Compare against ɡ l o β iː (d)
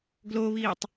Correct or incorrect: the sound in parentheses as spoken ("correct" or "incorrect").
incorrect